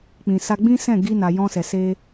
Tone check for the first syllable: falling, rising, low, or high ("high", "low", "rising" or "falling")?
low